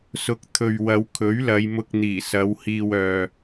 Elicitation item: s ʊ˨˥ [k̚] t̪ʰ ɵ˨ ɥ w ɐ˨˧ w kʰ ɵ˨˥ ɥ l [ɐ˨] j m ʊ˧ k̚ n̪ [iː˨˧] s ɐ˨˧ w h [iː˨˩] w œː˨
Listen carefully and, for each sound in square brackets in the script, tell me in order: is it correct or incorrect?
correct, incorrect: ɐ˨˧, incorrect: iː˨˩, incorrect: iː˧

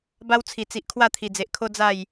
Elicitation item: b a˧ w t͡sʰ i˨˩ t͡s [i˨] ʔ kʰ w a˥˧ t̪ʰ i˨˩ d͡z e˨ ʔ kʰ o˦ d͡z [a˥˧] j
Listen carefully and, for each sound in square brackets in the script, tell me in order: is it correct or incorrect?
correct, correct

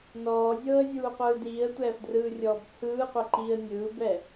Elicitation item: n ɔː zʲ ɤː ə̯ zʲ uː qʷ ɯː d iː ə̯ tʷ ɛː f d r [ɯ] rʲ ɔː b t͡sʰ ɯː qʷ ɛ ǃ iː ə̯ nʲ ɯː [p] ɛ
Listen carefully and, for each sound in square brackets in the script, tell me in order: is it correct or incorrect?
incorrect: ɯː, incorrect: b

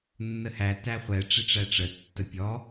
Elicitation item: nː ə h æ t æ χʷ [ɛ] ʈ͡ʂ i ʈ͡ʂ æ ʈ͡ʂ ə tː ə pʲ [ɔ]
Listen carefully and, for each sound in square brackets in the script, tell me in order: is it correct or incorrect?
correct, correct

